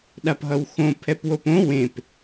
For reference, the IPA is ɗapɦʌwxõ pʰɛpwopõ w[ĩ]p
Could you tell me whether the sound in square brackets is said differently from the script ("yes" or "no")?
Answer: yes